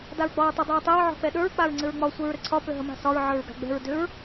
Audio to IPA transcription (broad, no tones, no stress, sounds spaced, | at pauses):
d a ɹ ɡ͡b ɒ ɹ tˤ ə dˤ ə ɹ tˤ ɛ ɹ ʕ ɔ̤ k͡p ɛ ɗ ə˞ ɹ k͡p a ɹ ŋ͡ǀ ɘ ɹ ŋ͡m ɒ sʷ ə ɹ ɾ ɘ ǀʰ ɒ p ʏ ɦ ə m a̤ s ɒ ɹ ʕ ə˞ ɹ ɡ a̤ ɡ͡b ɛ̤ ɹ d ʏ ɹ